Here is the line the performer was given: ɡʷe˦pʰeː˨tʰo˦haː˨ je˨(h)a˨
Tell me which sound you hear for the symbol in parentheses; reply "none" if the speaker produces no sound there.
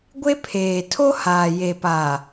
p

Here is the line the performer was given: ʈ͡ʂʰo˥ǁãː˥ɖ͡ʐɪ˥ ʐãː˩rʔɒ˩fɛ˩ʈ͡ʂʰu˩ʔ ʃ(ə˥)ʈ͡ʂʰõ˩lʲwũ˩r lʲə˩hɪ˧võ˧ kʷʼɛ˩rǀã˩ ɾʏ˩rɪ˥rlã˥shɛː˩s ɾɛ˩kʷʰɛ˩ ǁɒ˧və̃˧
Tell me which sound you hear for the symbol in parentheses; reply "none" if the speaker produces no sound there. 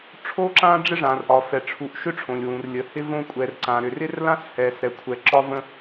ʏ˥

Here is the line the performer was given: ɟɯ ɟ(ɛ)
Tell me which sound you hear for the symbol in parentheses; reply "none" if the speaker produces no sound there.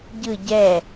ɛ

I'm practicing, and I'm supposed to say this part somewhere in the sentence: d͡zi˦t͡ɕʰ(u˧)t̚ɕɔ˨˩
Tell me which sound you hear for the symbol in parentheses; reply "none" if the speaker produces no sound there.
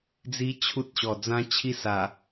u˦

